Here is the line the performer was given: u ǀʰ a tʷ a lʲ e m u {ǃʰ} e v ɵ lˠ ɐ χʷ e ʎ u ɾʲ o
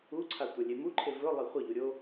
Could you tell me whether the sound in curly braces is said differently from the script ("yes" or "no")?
no